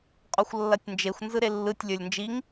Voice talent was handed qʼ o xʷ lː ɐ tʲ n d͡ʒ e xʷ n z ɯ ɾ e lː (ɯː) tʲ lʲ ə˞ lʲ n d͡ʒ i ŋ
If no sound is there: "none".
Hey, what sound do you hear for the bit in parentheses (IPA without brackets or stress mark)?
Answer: ɯ